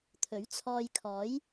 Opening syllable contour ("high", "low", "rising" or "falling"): rising